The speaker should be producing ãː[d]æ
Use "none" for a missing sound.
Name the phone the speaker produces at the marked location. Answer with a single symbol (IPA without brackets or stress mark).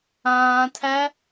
tʰ